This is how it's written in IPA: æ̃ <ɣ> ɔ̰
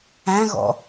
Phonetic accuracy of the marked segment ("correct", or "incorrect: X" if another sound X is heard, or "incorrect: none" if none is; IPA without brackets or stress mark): correct